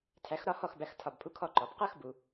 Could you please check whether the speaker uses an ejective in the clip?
no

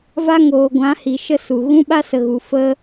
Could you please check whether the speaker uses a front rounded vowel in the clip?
no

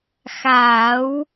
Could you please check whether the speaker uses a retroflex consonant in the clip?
no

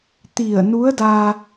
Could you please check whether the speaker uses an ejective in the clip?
no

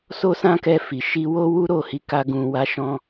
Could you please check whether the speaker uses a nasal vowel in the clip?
yes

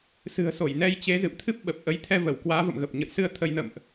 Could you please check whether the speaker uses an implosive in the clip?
yes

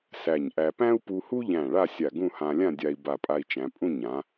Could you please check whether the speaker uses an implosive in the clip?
no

